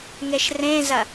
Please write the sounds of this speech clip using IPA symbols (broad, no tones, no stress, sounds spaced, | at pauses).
ŋ e ʃ r ẽ z ɐ